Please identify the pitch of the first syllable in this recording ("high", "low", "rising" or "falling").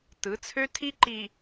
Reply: rising